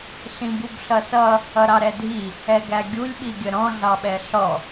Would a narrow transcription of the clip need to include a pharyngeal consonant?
no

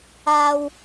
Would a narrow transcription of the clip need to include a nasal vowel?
no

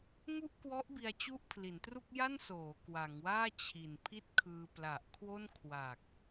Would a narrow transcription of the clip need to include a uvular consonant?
no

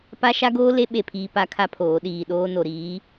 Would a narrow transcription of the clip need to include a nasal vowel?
no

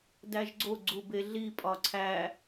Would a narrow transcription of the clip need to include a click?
yes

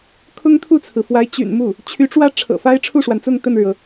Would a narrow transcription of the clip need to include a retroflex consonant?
yes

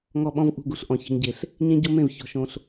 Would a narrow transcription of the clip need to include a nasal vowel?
yes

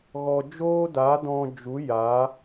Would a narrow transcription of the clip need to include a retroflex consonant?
no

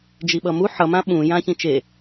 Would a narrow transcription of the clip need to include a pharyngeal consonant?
yes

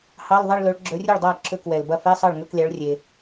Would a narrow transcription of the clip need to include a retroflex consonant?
yes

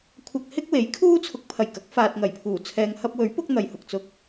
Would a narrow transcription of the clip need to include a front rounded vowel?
no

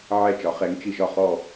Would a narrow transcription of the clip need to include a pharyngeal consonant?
yes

